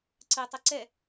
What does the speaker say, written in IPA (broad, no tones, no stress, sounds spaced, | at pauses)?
ǀ ɯ tˤ ɯ ǀ ɛ